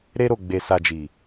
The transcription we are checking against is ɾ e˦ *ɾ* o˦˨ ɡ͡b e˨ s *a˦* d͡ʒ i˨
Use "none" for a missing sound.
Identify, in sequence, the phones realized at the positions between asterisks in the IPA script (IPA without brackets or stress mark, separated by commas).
ɾ, a˨